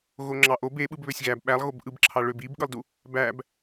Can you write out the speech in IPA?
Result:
ɣoŋ͡ǁɑʔob e ɓɯbβøsʲɣæb ɓælˠ ɣobʔɯbǁʰɑ ɭøb ibɠɯlˠdu | bæb

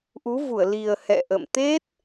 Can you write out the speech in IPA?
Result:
ʔu˨˦vu˧˩ə̯li˨˩ə̯ hɛ̰˧˨ʔə̰˧˨mt̪e˦˥t̚

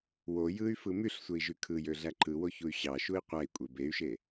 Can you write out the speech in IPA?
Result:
wo jɯy̯fɯ myɬsʷei̯ʒy kʰɯjøɮæ ǃɯwoçuy̯ ɕɑʃui̯ qʷæi̯kʷʼe bey̯ʃe

